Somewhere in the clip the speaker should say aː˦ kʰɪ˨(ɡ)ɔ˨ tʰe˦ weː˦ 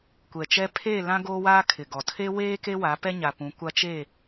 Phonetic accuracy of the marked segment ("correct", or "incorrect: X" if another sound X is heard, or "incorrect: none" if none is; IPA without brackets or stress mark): correct